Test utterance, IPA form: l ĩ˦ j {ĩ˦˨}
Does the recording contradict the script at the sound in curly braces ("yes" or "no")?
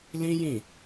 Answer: no